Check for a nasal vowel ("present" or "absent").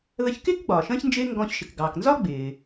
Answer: present